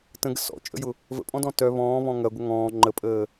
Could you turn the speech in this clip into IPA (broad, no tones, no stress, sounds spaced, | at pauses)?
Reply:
t ə̃ ɡ ə̰ s ɔ̰ t͡ʃʼ ə̰ j ʊ | v ə̰ pʼ ɔ̃ d ɔ̃ t œ β ɔ̃ː β ɔ̃ ŋ ɐ ɡʷ ɐ ŋ ɔ̃ː ŋ͡ǃ ə pʼ əː